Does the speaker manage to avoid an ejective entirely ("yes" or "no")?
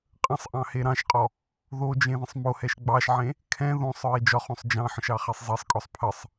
no